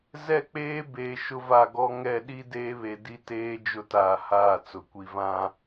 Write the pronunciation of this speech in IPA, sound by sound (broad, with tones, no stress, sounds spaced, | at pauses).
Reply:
z ɛ˦˨ k͡p eː˦ b eː˨ ʃ ʊ˦ v a˦˨ ɡ ɔ˦ ŋ ɛ˦˨ ɗ i˦ d eː˦ β e˨ d i˦ t eː˦ d͡ʒ ʊ˦ t aː˨ h aː˦˨ t͡s ʊ˨ kʷ i˨ v ã˦